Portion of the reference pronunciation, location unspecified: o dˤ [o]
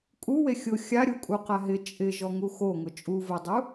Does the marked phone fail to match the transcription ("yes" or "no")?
yes